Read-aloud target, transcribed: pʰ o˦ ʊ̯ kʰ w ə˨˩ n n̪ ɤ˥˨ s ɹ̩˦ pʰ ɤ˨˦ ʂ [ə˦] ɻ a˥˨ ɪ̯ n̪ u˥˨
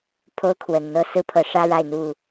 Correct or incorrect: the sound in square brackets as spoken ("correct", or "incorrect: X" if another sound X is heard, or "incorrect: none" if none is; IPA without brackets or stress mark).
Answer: incorrect: ä˦